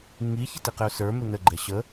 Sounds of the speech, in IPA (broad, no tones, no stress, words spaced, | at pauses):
ŋi çɪtiqɪʊ̯sə˞ mɪnə ɡ͡ǃɛɕə